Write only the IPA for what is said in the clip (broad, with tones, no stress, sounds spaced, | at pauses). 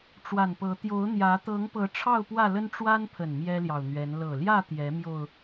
ʈ͡ʂ w a˨˩ n p ɤ˨˦ t̪ j o˨˦ ʊ̯ n̪ j ä˨˦ t̪ ɤ˨˦ ŋ p ɤ˨˦ ʈ͡ʂʰ ɑ˥˨ ʊ̯ p w ä˥˨ l ə˦ n ʈ͡ʂ w a˦ n pʰ ə˨˩ n m j ɛ˦ l j ɑ˨ ʊ̯ n̪ ɥ ɛ˨˦ n l ɤ˨˩ l j ä˥˨ t̪ j ɛ˨˦ m j o˧ ʊ̯